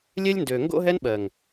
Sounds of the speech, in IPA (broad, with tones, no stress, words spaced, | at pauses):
lʲɛ˦lʲndø˨ ŋɡo̰˦ɦɛ˦n ɓɜ˨ŋ